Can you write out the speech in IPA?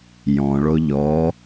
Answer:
j ɔ̃ ɭ o ʎ ɔ

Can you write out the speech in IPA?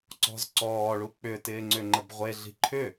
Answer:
ǀ ɔ̤ z ǀ ɔː ɭ u k͡p ʏ t ɪː ŋ͡ǀ ʏ ŋ͡ǃ ə b ʁʷ e ɮ i̤ ǃʰ ʏ

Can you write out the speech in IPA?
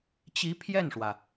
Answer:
t͡ɕ i˧˥ pʰ j ɛ˥˩ n ʂ w ä˩

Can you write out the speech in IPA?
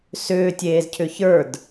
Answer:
s ʏː tʲ eː z cʰ ʏ ç ə˞ d

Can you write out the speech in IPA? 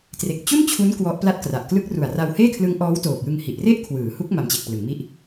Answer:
t r e˨˩ k̚ t͡ɕ u˥˩ n t͡ɕʰ u˦˥ n k w ɔ˦˥ ʔ p l a˥˩ t̚ k r a˨˩ ʔ k l ɯ˦˥ k̚ r u˨˩ a̯ r a˧ w h eː˥˩ kʰ l ɯ˦˥ ŋ ʔ ɔː˦˥ w t oː˨˩ k̚ j ɯ˧ ŋ h i˨˩ ʔ r e˥˩ ʔ kʰ w ɯː˩˦ h u˦˥ k̚ m a˧ m t͡ɕ e˨˩ k̚ p l ɯ˩˦ ŋ m i˥˩ ʔ

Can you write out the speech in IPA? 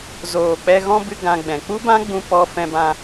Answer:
z oː˨ k͡p ɛ˧ ɣ ɔ̃˦ b ɨ˦ ɡ ã˧ ɡ͡b ɛ̃˨ k͡p u˦ b ã˦ ɡ͡b ũ˧ p ɔ˧ f ɛ̃˧ b ã˧

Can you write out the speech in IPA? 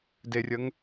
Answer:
d e rʲ ə ŋ

